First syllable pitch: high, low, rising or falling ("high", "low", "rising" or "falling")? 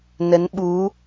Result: rising